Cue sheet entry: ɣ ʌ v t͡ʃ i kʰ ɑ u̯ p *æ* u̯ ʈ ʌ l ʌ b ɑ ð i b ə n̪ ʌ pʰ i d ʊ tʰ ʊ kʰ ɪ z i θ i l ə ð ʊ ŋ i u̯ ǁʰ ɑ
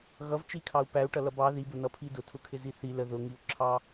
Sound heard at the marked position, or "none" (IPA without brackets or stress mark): æ